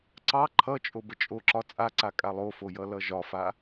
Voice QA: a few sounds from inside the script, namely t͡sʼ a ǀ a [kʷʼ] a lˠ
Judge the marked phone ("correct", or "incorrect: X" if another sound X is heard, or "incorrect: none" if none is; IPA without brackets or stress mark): incorrect: kʼ